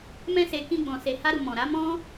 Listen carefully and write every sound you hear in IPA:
m ɛ̃˧ s e˨ k ĩ˧ ɡ͡b ɔ̃˨ s e˨ h a˧ ɾ u˨ m ɔ̃˨ ɾ a˨˦ m ɔ̃˦

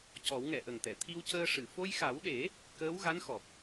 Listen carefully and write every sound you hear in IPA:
c ɔ˨˩˦ w ŋ ɛ˨˩˨ ʔ ə˨˩ ŋ t̪ ɛ˨˩˨ t̪ʰ i˧ w c əː˧ ʂ ɨ˨˩˨ f o˧ j x a˨˩˦ w ɗ e˨˩˦ | k əː˧˥ w ɣ a˧˥ n x ɔ˨˩ p̚

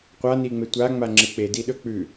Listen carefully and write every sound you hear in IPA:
qʷ a n i ŋ͡m e tʷ a ŋ͡m a ŋ͡ǁ ɨ k͡p e d i ɗ ɵ k͡p ʉ

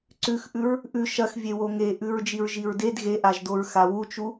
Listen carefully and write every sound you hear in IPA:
ǀ ʉ x ʔ ʉ ɹ | ʔ ʉ ʃ ɐ x vʲ e w o ŋ e ʔ ʉ ɹ d͡ʒ i ɹ ʒ i ɹ d e d ɣ e ʔ a ʒ d o ɹ x a w u t͡ʃ u

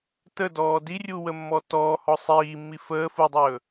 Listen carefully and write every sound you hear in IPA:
t ə d ɔː d i rʲ u w ə mː ɔ t ɔː h ɔ sˤ iː mː i f əː f u dˤ ɵː

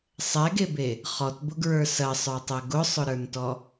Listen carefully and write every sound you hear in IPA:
sˤ ɛ ɡ e b e | χ ɔ t b ʊ ɡ ɹ ə˞ s ɐ sˤ ə˞ tˤ ɛ ɡ ʊ sˤ ʊ ɾ ə˞ n t ɔ

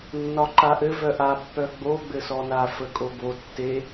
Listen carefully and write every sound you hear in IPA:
nː ɒ ǃ a ʔ ɘ v œ ʔ a pː œ ɡ͡b o ɡ͡b ɘ s ɔ n a f ə kʼ o b o tː e

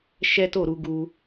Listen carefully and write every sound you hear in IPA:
ʃ ɛ˦ t o˦˨ ɾ u˧ ɡ u˦

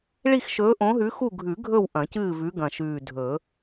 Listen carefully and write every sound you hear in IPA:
ɭ i˦˨ x ʃ ɵː˨˦ ʔ õ˨˦ ɦ ʉ˨˦ x u˦˨ ɡʱ ʉ˨˩˦ ɡʱ ɵ˦˨ w ʔ ɐ̃˨˩˦ c ɨː˦˨ v ʉ˨˦ ɡ ɐ̃˨˩ ʃ ʉː˨˩ dʱ ɵ˨˩˦

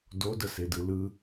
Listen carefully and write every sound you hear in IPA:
d o d ə s e d ɯ l ɯ

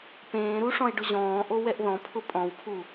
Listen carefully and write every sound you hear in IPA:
p ẽː ɾ u ʂ ɔ̃ e̯ ɖ ʊ ʑ ɔ̃ː ʔ o w ɛ ʔ ð ɔ̃ pʰ ʊ pʼ ɔ̃ w pʰ u

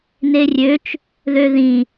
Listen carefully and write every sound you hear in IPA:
n e rʲ ø t͡ʃ | ð ø ð ĩ

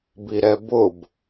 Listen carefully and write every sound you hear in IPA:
b i ɾ ɛ b ʊ b

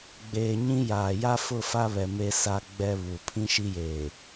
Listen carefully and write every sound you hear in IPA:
ɡ͡b eː˨ ɲ ĩ˦ j aː˨ j a˦ f ʊ˦˨ f a˦ β ɛ˨ m e˦ s a˦ ɡ͡b ɛ˦ β u˨ pʰ ĩ˦ ʃ i˦ j eː˨

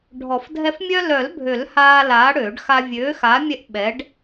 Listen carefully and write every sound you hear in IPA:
ɖʱ ɔ˨˩˦ f dʱ ɛ˦ f mʲ œ˦ l œ˨˩˦ l bʱ ø˨˩˦ l h aː˦ l aː˨˥ ɽ øː˨˩˦ ɖ x a˦ vʲ øː˨˥ x a˨˥ mʲ ɛ˦ ʔ ɓ ɛ˨˥ ɖ

